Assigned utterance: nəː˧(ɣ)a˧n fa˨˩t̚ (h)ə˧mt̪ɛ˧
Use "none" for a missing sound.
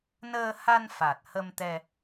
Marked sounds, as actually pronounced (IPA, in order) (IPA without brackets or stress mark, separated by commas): h, h